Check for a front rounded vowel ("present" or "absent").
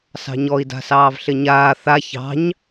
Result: absent